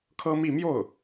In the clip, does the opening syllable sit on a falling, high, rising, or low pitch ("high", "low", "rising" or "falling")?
high